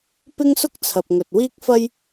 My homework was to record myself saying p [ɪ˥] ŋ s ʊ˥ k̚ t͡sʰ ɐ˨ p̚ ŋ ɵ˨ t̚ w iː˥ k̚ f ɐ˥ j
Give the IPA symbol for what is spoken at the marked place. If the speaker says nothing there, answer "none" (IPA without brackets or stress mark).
ɪ˥